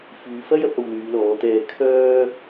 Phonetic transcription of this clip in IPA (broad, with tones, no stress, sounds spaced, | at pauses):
f yː˨˧ f ɐ˥ j ɐ˨˥ p̚ ɐ˧ w l yː˨˧ l ɔː˨˧ t̪ ɛː˧ kʰ œː˥